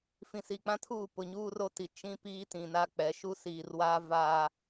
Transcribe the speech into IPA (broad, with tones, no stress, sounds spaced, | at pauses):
f ĩ˨ s i˨ k͡p ã˦ tʰ uː˦˨ p ʊ˨ ɲ uː˦ r o˦ t i˨ t͡ʃ ĩ˦ p iː˦ t ĩ˨ n a˦ k͡p ɛ˨˦ ʃ u˦ s iː˨ r w aː˦ v aː˦